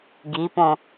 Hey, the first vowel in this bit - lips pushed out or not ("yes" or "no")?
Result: no